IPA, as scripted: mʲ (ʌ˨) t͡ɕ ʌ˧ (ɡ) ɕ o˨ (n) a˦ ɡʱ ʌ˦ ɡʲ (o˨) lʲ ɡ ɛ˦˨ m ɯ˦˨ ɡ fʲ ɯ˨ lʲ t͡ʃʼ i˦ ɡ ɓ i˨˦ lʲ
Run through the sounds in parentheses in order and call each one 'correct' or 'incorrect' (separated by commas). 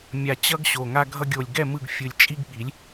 incorrect, correct, incorrect, correct